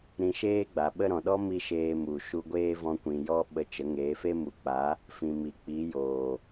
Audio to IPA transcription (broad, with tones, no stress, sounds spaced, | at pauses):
ɾ ĩ˧ ʃ eː˦ ɡ͡b a˨ ɓ ə˦ ɾ ɔ̃˨ ɗ ɔ˦ m i˧ ʃ eː˧ m u˨ ʃ u˧ ɡʷ eː˦ v ɔ̃˧ kʷ ĩ˨ j ɔ˦ ɓ ə˧ t͡ʃ ə˨˦ ŋ eː˨˦ f e˦ m u˨˦ k͡p a˨˦ | f ĩ˨ m i˨ k͡p i˨˦ j oː˨